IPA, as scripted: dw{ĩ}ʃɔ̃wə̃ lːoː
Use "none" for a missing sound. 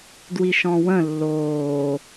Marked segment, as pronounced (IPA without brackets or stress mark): i